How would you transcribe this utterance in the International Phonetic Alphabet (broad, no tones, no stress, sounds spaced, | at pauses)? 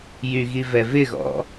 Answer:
j y ɣ i v ɛ v ɪ ɣ ɔ̰